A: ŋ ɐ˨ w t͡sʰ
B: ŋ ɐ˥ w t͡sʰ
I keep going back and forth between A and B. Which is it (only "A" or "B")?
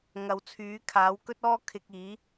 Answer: A